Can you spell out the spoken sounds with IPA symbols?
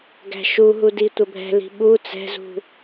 ɡ æ̤ ʃ u ɦ u d i tʷ ə bʱ ɛ̤ l i̤ ɓ u t͡s ɛ̤ z ṳ

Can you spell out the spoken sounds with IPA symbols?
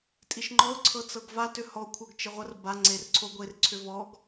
tʼ i ʃ ŋ͡ǃ ɔ ʊ̯ ǀʰ ɤ t͡s ɤ ɡ v a t ʏ h ɔ kʷʰ ɤ ɡ t͡ʃ ɘ ʁʷ ɐ r b a ŋ͡ǀ e r ǀʰ o ɡʷ e r ǀʰ ʏ v ɔ ɡ

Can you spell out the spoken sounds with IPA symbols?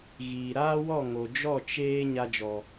ɣ iː˨ ɾ aː˦ w ɔ˦˨ ŋ o˨ d͡ʒ ɔ˦˨ t͡ʃ eː˦ ɲ a˧ d͡ʒ ɔ˨

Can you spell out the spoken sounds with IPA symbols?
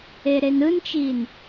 e ɾ e n ɯ n t͡ʃ i n

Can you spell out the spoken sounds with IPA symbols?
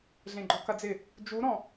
ɮ ẽ ɡ͡ǃ ɔ k ɐ d͡z ɪ | d͡ʒ u ɾ ɔ̃

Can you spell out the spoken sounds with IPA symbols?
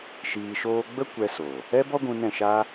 ʃ iː˧ ʃ oː˦ ɡ͡b ə˦ kʷ ɛ˧ s oː˨ | ɛ˦ b ɔ˦ ɡʷ ũ˧ n ɛ̃˦˨ ʃ aː˦

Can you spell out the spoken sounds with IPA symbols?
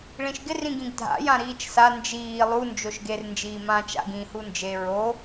ɭ ĩ ʃ ɡ ɪ r ĩ ɡ ĩ ɡ dʱ a̰ j ã ɾ iː t͡ʃ s a n d͡ʒ iː lˠ u n d͡ʒ o ʃ ɡ e r n d͡ʒ iː m ãː t͡ʃ a̰ ɡ ĩ h u n d͡ʒ e ɹ o

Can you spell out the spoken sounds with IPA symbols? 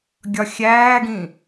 ɡʲ ɒ xʲ æː ɡ ĩ

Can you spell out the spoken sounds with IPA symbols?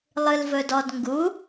lˠ ɨ l v ɵ d ɔ d ŋ ɡ u

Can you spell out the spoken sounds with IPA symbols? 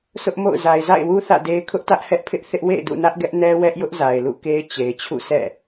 s ʊ˦ ʔ m o̰˦˨ ʊ̯ z a˨ ɪ̯ z a̰˦˨ ɪ̯ w u˦ θ ä̰˦˨ d e˦ ɪ̯ kʰ ʊ˦ ʔ t ä˦ ʔ h ɛ˦ ʔ pʰ ɪ˦ ʔ θ ɪ˦ ʔ w ḛ˦˨ ɪ̯ d ṵ˦˨ n ä˦ ʔ ɡ ɛ˦ ʔ n ɛ˦ w ɛ˦ ʔ j ʊ˦ ʔ z a˨ ɪ̯ l ṵ˦˨ k e˦ ɪ̯ t͡ɕ e˨ ɪ̯ t͡ɕʰ ṵ˦˨ s ɛ̰˦˨

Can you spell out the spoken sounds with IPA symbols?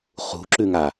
χ ṳ ǁ ʉ ŋ a

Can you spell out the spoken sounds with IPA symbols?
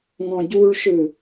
ŋ ɔ̃ ɟ u ɭ ʃ ɯ

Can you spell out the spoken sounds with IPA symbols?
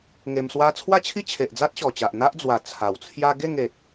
ŋ e˧ m s w a˦ t͡sʰ w a˦ t͡ɕʰ i˦ t͡ɕʰ e˨ ʔ d͡z a˦ t̚ ɕ ɔ˨˩ t͡ɕ a˨ ʔ n̪ a˦ ʔ d͡z w a˨˩ t͡sʰ a˨˩ w t͡sʰ j a˦ ɡ e˥˧ ŋ e˨ t̚

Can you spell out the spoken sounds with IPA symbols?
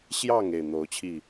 ɕ j ɑ˥˨ ŋ e˥˨ ɪ̯ n̪ o˨˦ ʊ̯ t͡ɕʰ i˥˨

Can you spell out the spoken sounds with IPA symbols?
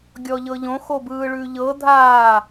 ɡʲ ɔ ʎ ɤ ʎ õ x o b ɯː ɭ ʉ ʎ ɤ dʱ aː

